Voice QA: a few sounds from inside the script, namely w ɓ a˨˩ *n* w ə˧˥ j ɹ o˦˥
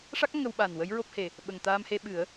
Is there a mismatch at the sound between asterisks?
no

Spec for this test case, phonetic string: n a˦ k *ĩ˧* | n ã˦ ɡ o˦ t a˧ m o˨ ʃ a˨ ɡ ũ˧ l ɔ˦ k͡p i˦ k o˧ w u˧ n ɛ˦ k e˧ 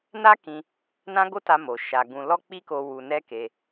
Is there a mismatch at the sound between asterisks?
no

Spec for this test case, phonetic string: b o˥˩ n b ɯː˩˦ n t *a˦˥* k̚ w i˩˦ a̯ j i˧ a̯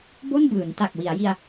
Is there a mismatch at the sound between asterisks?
yes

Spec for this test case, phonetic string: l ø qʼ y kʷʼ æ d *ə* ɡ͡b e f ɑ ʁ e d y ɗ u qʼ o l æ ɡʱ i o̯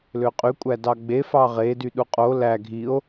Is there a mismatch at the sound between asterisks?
yes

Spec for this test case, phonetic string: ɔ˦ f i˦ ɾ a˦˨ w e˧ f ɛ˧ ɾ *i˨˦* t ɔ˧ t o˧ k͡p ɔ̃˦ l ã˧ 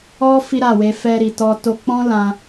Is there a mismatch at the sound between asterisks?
yes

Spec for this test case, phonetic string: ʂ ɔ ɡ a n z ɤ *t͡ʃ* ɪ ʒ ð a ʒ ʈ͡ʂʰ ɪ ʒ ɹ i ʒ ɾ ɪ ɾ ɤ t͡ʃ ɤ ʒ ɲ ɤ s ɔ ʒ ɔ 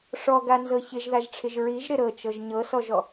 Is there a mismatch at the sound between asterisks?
yes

